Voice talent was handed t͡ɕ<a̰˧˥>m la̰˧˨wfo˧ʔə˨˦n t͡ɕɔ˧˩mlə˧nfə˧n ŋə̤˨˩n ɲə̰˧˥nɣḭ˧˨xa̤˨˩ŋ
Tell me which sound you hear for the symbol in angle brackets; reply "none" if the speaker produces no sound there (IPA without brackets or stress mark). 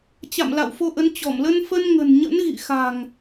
a̰˧˨